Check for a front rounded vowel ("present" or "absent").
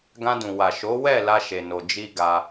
absent